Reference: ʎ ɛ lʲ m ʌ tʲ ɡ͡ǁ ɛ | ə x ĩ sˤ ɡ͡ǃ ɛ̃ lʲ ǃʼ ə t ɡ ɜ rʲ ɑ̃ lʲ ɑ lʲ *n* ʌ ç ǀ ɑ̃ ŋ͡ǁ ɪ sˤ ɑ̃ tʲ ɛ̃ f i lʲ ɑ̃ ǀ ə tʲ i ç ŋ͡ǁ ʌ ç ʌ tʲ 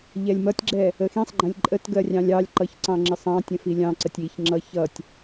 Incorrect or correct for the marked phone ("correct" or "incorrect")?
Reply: incorrect